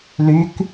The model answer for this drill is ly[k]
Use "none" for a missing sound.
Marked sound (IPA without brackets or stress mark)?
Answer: k